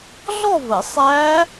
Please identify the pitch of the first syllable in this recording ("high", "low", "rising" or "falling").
falling